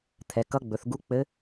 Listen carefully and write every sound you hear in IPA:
t̪ʰ ɛ˩˧ k ʌ˧˥ ɡ͡b ɵ˩˧ θ ɡ u˧˥ k͡p ɘ˧˥

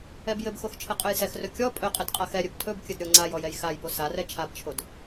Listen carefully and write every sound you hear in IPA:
ɛ b j ɘ b x o x t͡ʃʰ ɘ qʼ ɵ j s ɛ x r ɵ kʲ ɔ pʼ ɵ qʼ ɘ d qʼ a x ɛ ɾʲ ɵ b tʰ ɵ b kʲ ɘ d ɾʲ ɔ ŋ͡ǀ a j ɔ j ɛ j x a j b o s a r ɛ t͡ʃʰ a b t͡ʃʰ o d

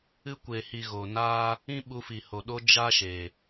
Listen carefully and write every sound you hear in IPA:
ɨ˧ kʷ e˨ h i˨ ɣ o˨ n aː˦ | ĩ˦ ɓ u˧ f i˨ h o˨ ɗ o˧ d͡ʒ a˦ ʃ e˨

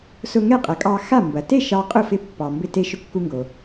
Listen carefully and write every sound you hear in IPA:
s ʊ˧ ŋ ɛ˥˩ qʼ ɐ˩˥ kʼ ɑ˧ x a˥˩ m b ɐ˩ t e˥˩ ʃ ɑ˧ qʼ ʊ˥˩ f ɪ˧ pː ɑ˩ m b ɪ˧ t e˧ ʃ ʊ˧ kː u˧ ŋ ɡ o˩

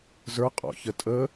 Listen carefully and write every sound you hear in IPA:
z ə˞ qʼ ɔ̰ ç ə tʼ ə

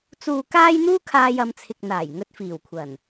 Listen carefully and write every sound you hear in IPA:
t͡s uː˨ k aː˧ j n̪ uː˥ kʰ aː˧ j ɐ˨˧ m t͡sʰ ɪ˨ k̚ n̪ aː˨˩ j ŋ ɵ˧ t̚ f iː˨˩ w kʷʰ ɐ˨˩ n

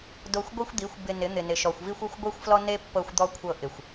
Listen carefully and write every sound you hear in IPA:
d o˧ xʷ ɡʷ i˦ xʷ d̪ i˨˦ xʷ b ɪ˧ n ɪ˨˦ n̪ ɪ˨ n ɪ˨ ʃ ɔ˨ xʷ v i˦ xʷ e˦ xʷ ɡʷ i˦ xʷ f l ɔ˦ n e˦ pː ɤ˧ xʷ d̪ ɔ˧ kʷʰ ɤ˧ ʔ ɪ˨ xʷ

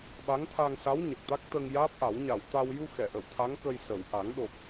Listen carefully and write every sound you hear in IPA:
ɓ a˧˥ ŋ t̪ʰ a˧ ŋ s a˧˥ w ɲ ə˨˩ k̚ t̪ a˦˥ k̚ t̪ ə˧ ŋ j aː˦˥ p̚ ʔ a˨˩˦ w ɲ a˨˩˨ w t̪ a˧ w j u˧ x ɛ˨˩˨ ʔ ə˨˩˨ w t̪ʰ a˧˥ ŋ k ə˧ j s ə˨˩˨ w ʔ a˨˩˦ ŋ ɗ o˨˩ k̚

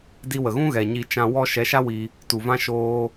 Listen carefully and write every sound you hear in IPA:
d i˧ w ə˨ ɣ ũ˦ ɣ ɛ˨ ɲ i˧ t͡ʃ ã˧ w ɔ˦ ʃ ɛ˨˦ ʃ a˦ w i˧ | t u˨ v ã˦ ʃ oː˦

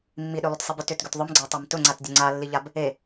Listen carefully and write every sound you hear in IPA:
mː i ɗ ʏ lˠ ʏ t sˤ i b ʏ t ʏ t ɡ ʏ t ðˤ ʊ m ɡ͡ǀ a tˤ a m t ʊ ŋ͡ǀ a t dʲ ʊ ŋ͡ǀ a lː i ʎ a b | e

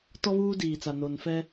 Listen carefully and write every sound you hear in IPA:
t ɔ˦ β uː˦ d iː˨ t͡s a˨ n o˨ n f ɛ˦

